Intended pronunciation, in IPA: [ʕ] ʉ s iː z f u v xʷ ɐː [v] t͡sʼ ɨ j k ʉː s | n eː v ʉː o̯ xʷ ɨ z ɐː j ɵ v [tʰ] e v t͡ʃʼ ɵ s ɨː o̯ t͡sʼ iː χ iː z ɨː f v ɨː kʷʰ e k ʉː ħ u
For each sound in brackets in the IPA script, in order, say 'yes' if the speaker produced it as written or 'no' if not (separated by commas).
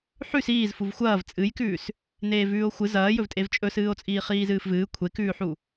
no, yes, no